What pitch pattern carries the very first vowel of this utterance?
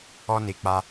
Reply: high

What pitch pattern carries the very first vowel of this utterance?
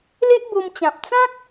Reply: high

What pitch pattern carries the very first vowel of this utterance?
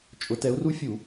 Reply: rising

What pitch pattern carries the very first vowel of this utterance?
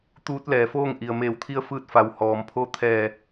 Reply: rising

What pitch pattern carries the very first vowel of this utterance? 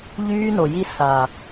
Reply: high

